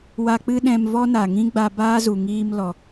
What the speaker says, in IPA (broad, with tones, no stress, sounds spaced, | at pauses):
w a˧ k͡p ɨ˦ ɗ ɛ̃˧ m v ɔ˦ n a˨ ŋ ĩ˦ ɡ͡b a˧ b aː˦ z u˨ ŋ iː˧ m l ɔ˨